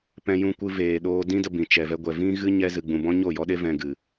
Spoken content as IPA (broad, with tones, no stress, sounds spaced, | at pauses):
p ɛ̃˧ j ũ˧ kʷ ɨ˧ v eː˨ ɗ oː˧ d ĩ˦ d ə˧ b ĩ˨ t͡ʃ ɛ˨ v ɛ˧ ɡʷ ɛ˨ v ĩ˦ ɣ ɨ˦ ɲ ɛ˧ z ɨ˨ ɡ͡b ũ˨ b ɔ̃˦ ɲ o˦˨ j ɔ˦ ɗ e˦ v ɛ̃˧ ɡ ɨ˨